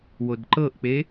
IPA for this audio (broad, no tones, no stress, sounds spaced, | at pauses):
w o d ǃ ɤ ʔ k͡p e